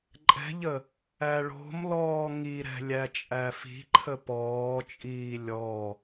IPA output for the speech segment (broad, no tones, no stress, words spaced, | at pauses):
ǃʼɛ̤ʎə | æɭo̤mlɔː ŋiɾɛ̤ lʲæt͡ʃʼæfi̤ǃʰə pɔːt͡ʃʼiː lʲɔ